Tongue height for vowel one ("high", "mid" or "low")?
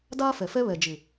low